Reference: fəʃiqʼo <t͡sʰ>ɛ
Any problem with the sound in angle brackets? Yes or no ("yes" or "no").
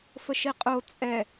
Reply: yes